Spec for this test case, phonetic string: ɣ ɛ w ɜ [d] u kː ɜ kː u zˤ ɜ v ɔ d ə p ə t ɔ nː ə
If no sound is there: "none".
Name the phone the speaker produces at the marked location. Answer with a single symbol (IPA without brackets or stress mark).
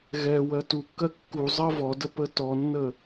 t